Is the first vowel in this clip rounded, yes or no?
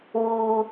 yes